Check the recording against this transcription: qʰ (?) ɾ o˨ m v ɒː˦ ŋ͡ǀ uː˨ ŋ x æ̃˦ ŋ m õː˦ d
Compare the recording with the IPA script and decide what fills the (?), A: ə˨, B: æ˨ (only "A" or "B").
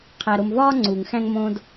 B